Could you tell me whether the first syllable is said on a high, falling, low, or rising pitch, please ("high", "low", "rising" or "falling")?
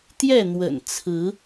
falling